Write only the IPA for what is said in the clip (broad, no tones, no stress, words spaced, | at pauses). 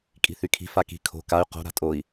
kʼi̤θykʰi̤ faki̤ kʰo̤ kay̯ qo̤ ɾa̤tʼoi̯